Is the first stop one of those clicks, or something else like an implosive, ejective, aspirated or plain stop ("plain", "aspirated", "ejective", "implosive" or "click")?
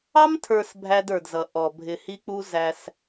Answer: aspirated